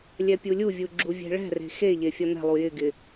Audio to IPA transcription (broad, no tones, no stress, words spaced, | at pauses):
lʲɛpʲulʲuvʲu ɡ͡ǁuvʲe̤ɭɛ̤re̤ xeʎe fʲɒnɛ̤lˠu jɪɡɪ